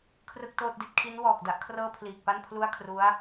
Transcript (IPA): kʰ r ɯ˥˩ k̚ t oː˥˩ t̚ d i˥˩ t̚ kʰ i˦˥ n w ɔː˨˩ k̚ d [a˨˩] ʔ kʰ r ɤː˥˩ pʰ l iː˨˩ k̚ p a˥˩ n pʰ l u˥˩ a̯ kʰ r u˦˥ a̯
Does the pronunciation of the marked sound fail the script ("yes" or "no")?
yes